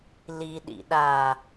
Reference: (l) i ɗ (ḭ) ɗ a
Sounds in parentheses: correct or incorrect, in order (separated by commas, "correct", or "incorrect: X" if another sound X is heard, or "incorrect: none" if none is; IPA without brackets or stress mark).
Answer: correct, correct